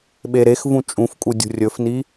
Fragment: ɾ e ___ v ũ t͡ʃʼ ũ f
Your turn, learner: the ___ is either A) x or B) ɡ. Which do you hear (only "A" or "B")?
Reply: A